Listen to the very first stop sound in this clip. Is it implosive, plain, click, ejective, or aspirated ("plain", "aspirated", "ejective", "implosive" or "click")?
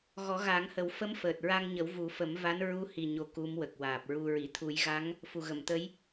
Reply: plain